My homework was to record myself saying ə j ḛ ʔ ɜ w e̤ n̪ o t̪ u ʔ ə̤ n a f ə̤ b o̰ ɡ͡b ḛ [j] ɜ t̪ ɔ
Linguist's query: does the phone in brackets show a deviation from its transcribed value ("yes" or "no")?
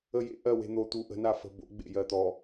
no